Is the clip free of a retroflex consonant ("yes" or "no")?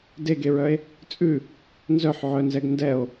yes